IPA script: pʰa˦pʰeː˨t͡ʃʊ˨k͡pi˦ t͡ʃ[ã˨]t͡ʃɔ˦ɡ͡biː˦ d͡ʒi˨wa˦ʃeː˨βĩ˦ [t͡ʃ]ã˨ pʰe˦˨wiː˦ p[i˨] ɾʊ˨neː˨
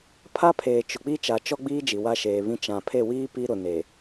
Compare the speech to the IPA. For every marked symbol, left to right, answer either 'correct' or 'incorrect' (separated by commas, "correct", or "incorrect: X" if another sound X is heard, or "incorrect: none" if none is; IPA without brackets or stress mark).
incorrect: a˨, correct, incorrect: i˦